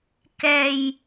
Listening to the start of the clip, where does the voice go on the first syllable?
low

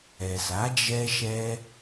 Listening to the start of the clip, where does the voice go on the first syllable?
low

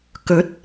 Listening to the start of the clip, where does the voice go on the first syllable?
rising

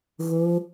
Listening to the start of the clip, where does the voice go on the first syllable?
low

